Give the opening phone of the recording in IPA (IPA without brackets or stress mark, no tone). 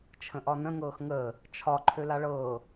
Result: t͡ʃʰ